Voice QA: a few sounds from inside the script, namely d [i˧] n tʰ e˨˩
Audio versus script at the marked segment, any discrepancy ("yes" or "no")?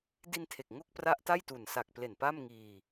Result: no